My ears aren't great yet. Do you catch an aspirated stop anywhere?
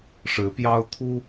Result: yes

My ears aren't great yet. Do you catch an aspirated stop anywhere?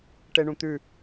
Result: no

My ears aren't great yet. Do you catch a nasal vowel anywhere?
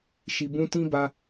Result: yes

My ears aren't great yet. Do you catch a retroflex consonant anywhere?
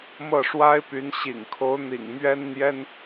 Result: yes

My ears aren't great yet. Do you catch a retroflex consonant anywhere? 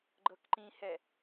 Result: no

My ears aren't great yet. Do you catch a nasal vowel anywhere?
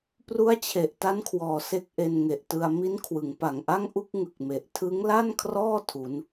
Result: no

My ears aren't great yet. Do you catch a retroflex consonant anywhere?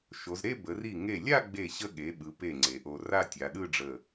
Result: yes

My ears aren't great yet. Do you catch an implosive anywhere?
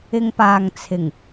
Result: no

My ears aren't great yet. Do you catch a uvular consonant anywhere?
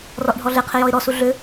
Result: yes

